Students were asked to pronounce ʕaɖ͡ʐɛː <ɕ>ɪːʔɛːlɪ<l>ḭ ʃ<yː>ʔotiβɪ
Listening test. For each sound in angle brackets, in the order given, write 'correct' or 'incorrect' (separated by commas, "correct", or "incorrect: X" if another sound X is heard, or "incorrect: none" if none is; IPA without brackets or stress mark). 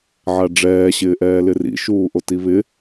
correct, incorrect: r, incorrect: uː